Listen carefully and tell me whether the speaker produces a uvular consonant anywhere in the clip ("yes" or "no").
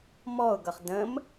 yes